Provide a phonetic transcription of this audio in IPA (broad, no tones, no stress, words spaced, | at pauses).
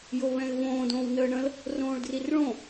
joβɛ̃ɪ̯võː dõːwnəːɳə̃l | rõːɭdrirɭõ